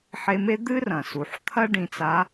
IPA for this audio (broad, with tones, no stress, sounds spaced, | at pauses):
ħ e˧˥ m e˥ d̪ ɨ˥ r ɐ̃˩ s u˩ ħ t̪ʰ ɐ˥ ɖ ĩ˧ t͡s a˧˥